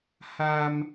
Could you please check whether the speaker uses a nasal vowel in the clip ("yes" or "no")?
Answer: no